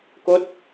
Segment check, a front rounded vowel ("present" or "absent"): absent